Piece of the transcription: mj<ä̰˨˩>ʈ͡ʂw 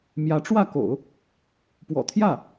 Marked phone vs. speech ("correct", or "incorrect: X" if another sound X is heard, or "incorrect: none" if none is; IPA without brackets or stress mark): incorrect: ä˧˥